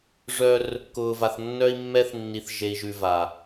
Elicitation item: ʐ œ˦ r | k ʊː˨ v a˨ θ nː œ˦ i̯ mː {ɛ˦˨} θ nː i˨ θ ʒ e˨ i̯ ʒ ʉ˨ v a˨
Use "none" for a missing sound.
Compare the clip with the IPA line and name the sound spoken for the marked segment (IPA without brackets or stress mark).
ɛ˦